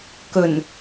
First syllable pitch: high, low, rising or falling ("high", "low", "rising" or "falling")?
low